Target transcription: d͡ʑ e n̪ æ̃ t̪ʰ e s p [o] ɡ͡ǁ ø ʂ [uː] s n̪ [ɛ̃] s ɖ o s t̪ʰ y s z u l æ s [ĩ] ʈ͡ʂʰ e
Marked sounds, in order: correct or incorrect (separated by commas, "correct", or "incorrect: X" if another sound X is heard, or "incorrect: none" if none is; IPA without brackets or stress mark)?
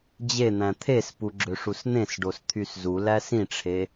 incorrect: u, incorrect: u, incorrect: ẽ, correct